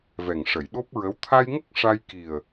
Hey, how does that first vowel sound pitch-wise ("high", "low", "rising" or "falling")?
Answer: low